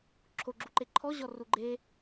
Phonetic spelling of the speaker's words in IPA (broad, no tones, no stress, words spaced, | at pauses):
ǁʰoɡ͡ǁuǃe ǃʰɔʑɔru ɡ͡ǃe